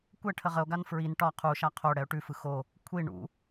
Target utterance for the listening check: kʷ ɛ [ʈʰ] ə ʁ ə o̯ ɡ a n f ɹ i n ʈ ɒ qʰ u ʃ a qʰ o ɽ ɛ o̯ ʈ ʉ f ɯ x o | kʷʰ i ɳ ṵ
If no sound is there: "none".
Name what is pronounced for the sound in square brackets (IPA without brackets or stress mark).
ʈʰ